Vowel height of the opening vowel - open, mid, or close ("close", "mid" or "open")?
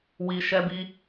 close